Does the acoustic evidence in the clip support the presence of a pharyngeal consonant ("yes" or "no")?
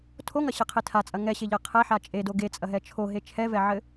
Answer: yes